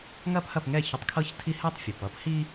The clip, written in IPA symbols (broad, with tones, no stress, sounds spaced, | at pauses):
ŋ ɐ˥ p h ɐ˥˩ p ŋ ɛ˥˩ ç ə˧ tˤ kʰ ɤ˥ ç tʰ i˥ h ɛ˥ tˤ fʲ ʌ˩ p ʌ˥ p h i˥